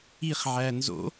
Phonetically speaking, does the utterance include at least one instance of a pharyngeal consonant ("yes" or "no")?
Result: yes